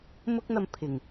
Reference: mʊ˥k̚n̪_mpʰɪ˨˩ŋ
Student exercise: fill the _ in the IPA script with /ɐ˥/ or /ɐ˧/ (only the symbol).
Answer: ɐ˧